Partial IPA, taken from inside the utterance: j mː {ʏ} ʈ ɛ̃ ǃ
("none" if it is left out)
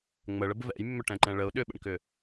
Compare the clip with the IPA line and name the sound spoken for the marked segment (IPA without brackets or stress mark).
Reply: ʏ